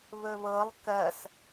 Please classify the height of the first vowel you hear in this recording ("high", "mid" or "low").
mid